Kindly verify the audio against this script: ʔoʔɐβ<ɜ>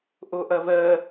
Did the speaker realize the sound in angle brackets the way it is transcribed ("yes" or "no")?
yes